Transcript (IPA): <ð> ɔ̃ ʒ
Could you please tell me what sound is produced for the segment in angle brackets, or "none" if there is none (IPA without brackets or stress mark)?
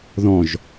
ð